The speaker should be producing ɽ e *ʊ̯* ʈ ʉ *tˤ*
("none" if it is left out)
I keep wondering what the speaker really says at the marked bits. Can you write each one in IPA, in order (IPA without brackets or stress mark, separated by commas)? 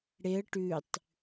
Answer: ə̯, tˤ